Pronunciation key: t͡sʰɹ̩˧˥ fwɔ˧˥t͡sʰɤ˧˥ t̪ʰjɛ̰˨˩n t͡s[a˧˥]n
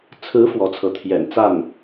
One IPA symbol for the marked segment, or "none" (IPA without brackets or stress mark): a˥˩